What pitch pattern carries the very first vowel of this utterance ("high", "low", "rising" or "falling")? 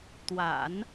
low